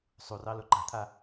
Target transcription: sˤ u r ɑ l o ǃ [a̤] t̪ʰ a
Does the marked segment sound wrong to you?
no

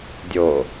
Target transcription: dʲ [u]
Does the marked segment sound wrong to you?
yes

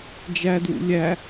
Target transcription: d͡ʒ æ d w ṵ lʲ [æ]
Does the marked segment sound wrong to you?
no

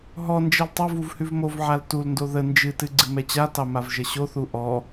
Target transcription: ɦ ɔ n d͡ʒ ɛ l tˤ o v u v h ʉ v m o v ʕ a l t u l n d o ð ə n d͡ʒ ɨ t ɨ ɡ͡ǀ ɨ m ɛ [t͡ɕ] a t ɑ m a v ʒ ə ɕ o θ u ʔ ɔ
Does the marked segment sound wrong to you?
no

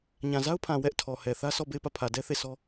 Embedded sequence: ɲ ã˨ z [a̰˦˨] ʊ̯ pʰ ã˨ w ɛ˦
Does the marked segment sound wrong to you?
yes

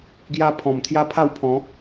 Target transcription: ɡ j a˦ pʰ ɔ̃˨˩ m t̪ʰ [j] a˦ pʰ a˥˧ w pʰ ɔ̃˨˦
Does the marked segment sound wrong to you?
no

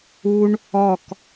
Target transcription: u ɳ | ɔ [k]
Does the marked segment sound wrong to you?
no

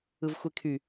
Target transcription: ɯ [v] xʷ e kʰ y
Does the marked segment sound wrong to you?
no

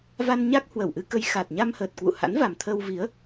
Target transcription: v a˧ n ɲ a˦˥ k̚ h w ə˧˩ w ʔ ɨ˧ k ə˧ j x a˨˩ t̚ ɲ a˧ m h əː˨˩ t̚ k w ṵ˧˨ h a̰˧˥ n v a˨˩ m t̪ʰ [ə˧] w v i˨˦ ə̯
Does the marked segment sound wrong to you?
no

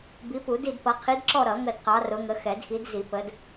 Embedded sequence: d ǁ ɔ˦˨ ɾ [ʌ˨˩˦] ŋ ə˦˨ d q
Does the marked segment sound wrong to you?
no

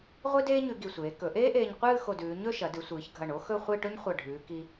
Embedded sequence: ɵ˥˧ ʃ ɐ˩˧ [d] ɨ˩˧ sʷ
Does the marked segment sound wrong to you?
no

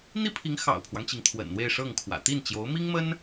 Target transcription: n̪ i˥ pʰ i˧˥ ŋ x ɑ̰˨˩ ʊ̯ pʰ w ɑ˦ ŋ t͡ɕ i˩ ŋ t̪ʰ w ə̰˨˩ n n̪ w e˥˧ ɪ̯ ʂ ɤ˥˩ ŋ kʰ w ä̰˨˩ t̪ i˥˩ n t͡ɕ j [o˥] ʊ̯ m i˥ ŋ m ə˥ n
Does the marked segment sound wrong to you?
yes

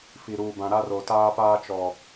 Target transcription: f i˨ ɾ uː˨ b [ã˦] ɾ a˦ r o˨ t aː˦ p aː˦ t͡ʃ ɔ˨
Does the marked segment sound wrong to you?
yes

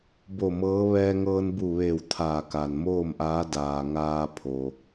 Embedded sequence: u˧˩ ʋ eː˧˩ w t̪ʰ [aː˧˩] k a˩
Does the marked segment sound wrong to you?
no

